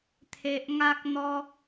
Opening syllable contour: high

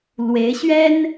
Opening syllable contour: rising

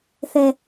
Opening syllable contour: high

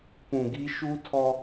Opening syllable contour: low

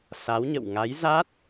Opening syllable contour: rising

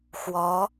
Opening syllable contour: rising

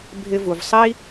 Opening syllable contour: high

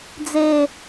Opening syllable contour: low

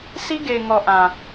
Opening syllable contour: high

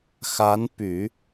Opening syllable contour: rising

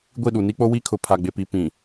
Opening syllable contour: falling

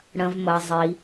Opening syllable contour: low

